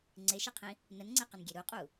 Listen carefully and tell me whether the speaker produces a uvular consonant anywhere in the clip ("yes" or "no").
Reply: yes